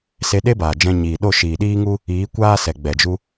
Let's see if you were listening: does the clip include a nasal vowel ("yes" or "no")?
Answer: yes